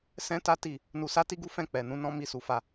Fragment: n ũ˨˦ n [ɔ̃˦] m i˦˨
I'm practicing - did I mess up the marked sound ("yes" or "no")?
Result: no